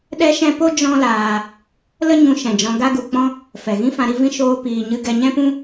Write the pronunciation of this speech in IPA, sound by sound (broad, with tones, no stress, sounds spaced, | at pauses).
ɗ ɛ˦ ʃ ɛ̃˦ p o˦ d͡ʒ ɔ̃˦ l aː˧ | l ə˦ ɲ ũ˧ ʃ ɛ̃˨ d͡ʒ ɔ̃˧ ɡ a˦ ɡ u˧ k͡p ɔ̃˦ | f ɛ˨ ɣ ĩ˦ f ã˧ ɾ i˧ v ĩ˧ ʃ oː˧ p iː˧ ɲ ɨ˦ ɡ ɛ˧ ɲ ɛ̃˦ p ũ˦